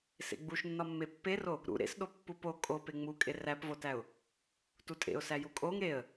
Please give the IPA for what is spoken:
s ḛ ɡ͡b u ʃ nː ɒ mː e pː e r o | ɾ ṵ ɾ ḛ s ɗ o pː u p o kʼ o p e ŋ͡m u kʼ e r æ p v o t æ ʊ̯ | t u tʼ ḛ ʊ̯ s æ j u kʼ o ŋ ɾ e ə̯

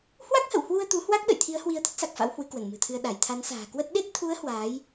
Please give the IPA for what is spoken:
h w a˦˥ k̚ h ə̰˧˨ w h w u˧ ə̯ t̪ u˨˦ h w a˦˥ k̚ ɗ ə̰˧˨ j t̪ʰ i˨˦ ə̯ h w i˨˦ ə̯ t̪ ə˦˥ t̚ s a˨˩ k̚ f a̰˧˥ w h w ɨ˨˦ k w ə˧˩ n m ɨ̤˨˩ t̪ʰ ɨ˧ ə̯ ɗ a˧˩ j t̪ʰ a˨˦ n s a̤ː˨˩ k w ə˦˥ t̚ ɗ e˦˥ t̚ t̪ʰ u˨˦ ə̯ h w aː˨˦ j

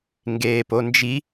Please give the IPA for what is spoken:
ŋ ɡ eː p o n d͡ʒ i

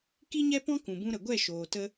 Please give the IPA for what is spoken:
k i˦ ɲ ɛ˦ p ɔ̃˦ k ũ˨ b ũ˧ ɾ ə˨ ɡʷ ɛ˦˨ ʃ oː˨ t ə˧

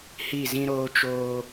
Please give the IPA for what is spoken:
h i˦˨ z ĩ˦ ɾ oː˦ t͡ʃ oː˦

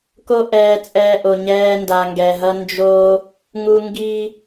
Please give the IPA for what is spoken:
k o˦ ʔ ɛː˧ t͡sʼ ɛː˧ ʔ o˨ ɲ ɛː˦ n d a˧ ŋ ɡ ɛ˧ ɦ ʌ˦ n d͡ʒ o˦ | ŋ u˧ ŋ ɡ i˧

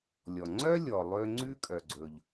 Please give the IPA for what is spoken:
lʲ ɔ˩ ŋ͡ǀ œ˥ lʲ ɔ˩ lˠ ø˧ ŋ͡ǀ ʉ˥ kʼ œ˩ ɡ͡ǀ ɵ˩ ʎ

